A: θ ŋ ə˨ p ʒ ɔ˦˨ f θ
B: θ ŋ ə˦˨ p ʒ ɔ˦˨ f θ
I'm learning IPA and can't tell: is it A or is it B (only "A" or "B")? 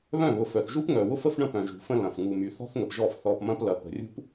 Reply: A